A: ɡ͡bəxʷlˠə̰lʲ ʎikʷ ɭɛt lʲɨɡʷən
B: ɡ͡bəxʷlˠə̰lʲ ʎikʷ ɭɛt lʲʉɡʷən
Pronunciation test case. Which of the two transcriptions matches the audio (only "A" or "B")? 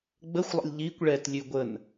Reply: B